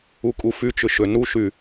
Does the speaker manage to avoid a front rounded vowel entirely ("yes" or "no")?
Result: no